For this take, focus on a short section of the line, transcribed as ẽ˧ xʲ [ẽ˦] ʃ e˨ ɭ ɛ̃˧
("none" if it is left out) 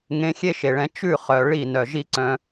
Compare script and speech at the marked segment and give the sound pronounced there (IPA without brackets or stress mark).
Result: e˦